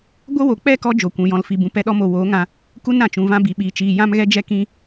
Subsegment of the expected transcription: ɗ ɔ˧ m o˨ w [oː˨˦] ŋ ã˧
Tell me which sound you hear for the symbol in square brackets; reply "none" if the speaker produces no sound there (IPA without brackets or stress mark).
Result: oː˨˦